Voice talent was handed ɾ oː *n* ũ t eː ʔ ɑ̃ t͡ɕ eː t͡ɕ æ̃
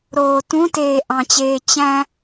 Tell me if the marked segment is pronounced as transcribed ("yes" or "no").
no